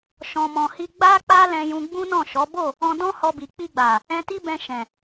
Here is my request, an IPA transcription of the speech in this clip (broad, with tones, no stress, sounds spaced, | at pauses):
ʃ ɔ̃˨ m ɔ̃˨ h i˧ ɡ͡b a˦ k͡p a˦ l ɛ̃˧ j ũ˧ ɡ͡b ũ˦ n ɔ̃˦˨ ʃ ɔ˨˦ b o˦˨ | ɔ̃˧ d ɔ̃˦ h ɔ˧ b i˨ k͡p i˧ ɡ͡b a˨ | ɛ̃˧ t i˦ b ɛ̃˧ ʃ ɛ̃˨